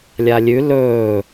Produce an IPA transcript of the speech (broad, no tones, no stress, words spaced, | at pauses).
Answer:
lʲalʲʉ lɵː